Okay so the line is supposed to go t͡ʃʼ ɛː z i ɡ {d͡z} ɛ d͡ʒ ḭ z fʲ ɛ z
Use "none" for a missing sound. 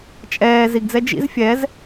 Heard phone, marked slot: d͡z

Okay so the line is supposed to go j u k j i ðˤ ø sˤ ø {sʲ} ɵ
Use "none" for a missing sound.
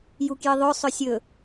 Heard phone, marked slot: sʲ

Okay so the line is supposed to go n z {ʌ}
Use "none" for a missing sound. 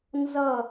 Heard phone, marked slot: ʌ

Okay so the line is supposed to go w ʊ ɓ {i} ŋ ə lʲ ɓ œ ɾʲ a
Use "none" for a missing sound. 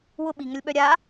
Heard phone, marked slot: i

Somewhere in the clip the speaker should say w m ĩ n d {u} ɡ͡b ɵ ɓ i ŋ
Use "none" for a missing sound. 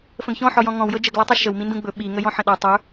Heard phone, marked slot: ũ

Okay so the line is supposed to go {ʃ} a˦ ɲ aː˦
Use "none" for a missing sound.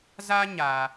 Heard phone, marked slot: z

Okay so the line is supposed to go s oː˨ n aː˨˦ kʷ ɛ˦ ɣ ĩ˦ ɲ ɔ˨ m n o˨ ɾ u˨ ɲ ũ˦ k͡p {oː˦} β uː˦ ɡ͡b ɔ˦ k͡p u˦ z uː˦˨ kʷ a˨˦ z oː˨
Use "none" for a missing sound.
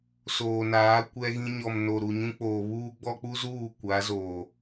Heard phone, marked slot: oː˨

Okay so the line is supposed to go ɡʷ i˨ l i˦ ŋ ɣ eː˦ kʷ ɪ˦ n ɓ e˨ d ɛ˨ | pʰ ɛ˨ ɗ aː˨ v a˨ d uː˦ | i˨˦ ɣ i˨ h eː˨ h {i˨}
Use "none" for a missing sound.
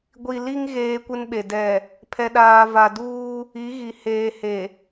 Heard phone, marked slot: e˨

